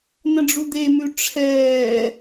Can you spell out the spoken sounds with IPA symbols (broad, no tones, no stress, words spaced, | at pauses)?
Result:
nə̃ɖ͡ʐud̪emʉ ʈ͡ʂʰɛː